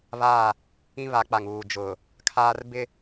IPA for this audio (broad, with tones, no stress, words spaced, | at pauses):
βaː˦˨ | ĩ˦βa˨˦k͡pa˨ŋ uː˨d͡ʒʊ˨ | kʰaː˦rbɪ˦